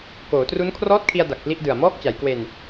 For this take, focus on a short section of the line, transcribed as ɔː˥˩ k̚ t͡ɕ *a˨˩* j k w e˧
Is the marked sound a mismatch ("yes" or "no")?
yes